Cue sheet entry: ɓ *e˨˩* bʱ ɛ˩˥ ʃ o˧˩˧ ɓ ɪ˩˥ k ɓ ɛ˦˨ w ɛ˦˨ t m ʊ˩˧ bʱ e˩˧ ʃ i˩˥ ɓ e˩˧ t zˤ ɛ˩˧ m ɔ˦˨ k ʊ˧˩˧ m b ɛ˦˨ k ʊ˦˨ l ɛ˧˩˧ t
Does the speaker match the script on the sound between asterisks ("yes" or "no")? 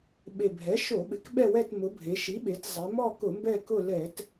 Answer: yes